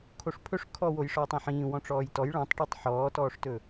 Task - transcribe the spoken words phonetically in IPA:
kʰ o ʂ pʰ ɵ ʂ kʰ ɔ w o j ʂ ɔː tˤ ĩ ħ ĩː w ɔ̃ ʈ͡ʂ ɔː j t ɔ j ɭ ɔ̃ tˤ ʈ ɔ tˤ ħ ɔː t ɔː ʂ t ɵ

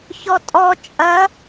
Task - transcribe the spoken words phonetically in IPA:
ç ɔ tʼ ɔ t͡ʃʼ ɐ

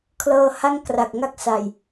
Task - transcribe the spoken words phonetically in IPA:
kʰ l ɤː˧ h a˥˩ ŋ k r a˨˩ k̚ ŋ a˥˩ k̚ s a˨˩ j

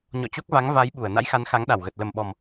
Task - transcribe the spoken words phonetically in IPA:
ɲ ɔ̰˧˨ t͡ɕ o˦˥ k̚ v a˨˦ ŋ v a˨˦ j ɓ u˧˩ ə̯ n a̰˧˥ j x a˨˦ n x a˨˦ ŋ ɗ a˧˩ w ɣ ə˨˩ t̚ l ə˨˩ m ɓ ɔ˨˩ m

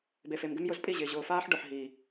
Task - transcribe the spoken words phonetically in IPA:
b e˨ f e˨ m ɡ ɪ˦ m j ʊ˦ z pʼ i˦˨ ʑ ɪː˨ ʑ ʊː˨ f aː˦ ħ ɖ ʊ˨ ħ ɦ iː˨

